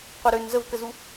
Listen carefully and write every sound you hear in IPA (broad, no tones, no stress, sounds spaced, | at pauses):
qʷ œ ɾ ø n z ə v k ə z u